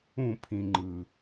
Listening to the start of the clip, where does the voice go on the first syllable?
falling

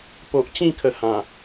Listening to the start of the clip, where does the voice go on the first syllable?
low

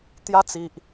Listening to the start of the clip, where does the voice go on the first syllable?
high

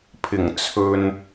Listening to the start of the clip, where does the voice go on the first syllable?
low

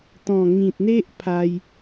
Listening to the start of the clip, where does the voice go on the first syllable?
low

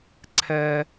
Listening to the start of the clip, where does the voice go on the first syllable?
low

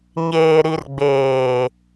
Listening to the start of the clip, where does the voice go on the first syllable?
low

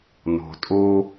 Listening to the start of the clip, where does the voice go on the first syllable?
low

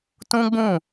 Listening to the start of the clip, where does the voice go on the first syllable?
high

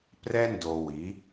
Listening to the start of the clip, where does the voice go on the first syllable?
high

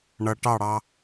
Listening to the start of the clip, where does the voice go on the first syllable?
low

